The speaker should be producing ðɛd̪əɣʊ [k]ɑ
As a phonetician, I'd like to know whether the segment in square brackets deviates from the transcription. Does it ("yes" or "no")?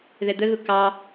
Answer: no